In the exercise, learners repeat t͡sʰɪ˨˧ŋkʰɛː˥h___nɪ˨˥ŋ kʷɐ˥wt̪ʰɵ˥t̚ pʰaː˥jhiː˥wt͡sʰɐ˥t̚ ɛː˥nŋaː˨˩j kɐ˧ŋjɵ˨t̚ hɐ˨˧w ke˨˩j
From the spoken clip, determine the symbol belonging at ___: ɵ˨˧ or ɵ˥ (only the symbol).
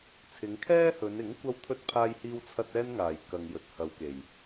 ɵ˨˧